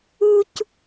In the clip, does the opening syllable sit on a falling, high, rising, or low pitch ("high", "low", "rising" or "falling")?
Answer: high